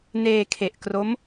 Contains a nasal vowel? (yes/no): no